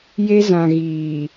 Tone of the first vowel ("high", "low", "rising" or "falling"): high